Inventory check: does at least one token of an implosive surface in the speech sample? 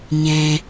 no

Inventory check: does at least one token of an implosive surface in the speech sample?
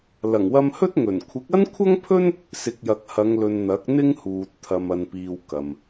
no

